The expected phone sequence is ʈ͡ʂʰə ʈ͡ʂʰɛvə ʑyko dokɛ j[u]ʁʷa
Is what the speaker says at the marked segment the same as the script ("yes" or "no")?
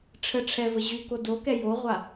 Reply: no